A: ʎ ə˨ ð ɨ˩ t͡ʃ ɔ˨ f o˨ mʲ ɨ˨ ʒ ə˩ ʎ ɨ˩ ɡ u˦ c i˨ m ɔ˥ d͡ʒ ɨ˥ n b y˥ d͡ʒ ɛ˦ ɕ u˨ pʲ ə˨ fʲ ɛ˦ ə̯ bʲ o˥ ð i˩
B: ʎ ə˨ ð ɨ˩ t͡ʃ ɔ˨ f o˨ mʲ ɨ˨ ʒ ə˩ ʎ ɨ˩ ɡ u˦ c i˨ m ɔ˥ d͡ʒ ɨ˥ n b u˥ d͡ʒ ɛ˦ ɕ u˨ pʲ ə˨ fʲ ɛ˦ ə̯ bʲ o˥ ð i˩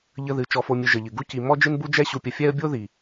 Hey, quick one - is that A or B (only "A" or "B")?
B